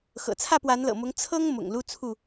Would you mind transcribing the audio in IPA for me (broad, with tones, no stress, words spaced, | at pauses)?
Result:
xɤ̰˨˩t͡sʰä˥˨pwa˨˦nlɤ̰˨˩ mʊ˨˦ŋt͡sʰɤ˦ŋ mʊ̰˨˩ŋlu˦t͡sʰu˥˨